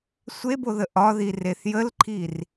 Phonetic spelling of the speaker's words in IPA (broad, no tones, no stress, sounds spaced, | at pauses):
sʷ e b o ð ə ʔ ɒ ð i r e θ j ə l ǃʰ i r